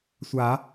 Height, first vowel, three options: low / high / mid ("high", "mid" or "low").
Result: low